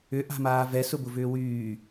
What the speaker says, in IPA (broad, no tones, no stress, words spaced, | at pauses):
ʏʔa̤maː vɛ sʊbʊvʏːwyː